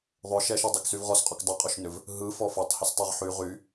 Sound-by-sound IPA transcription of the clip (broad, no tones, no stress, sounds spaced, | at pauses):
ðˤ ʏ ʃ ɛ ʃ ə dˤ e k s y v ʁ ɔ s qʼ ɔ k dˤ ɯ qʼ o ʃ n ʏ v | ɦ ɯ f ɔ f ɔ tˤ h o s tˤ ɛ ʁ ħ y ʁ y